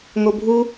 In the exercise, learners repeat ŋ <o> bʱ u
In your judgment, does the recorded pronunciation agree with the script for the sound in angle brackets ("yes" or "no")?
yes